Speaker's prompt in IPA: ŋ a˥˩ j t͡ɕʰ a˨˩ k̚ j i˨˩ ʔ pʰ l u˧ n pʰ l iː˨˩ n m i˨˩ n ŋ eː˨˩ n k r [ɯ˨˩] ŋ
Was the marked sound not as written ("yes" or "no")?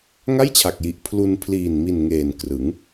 yes